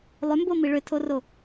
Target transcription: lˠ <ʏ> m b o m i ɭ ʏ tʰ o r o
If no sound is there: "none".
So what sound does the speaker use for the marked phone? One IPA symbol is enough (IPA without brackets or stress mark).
ʏ